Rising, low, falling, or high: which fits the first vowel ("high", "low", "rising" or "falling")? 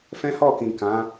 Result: high